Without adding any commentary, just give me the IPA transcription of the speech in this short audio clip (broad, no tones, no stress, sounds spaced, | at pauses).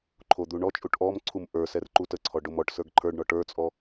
ǃʰ o d̪ u ɳ ɔ t͡ʃʼ u ʈ ʔ ɔ m ǀʰ u m ʔ ə˞ s ɛ r ǃ u t ə ǀʰ ɔ ɖ o m ɔ ʈ s ə˞ ɡ ǃʰ ə˞ ɖ ɳ ɔ ʈ ə˞ t͡sʼ ɔ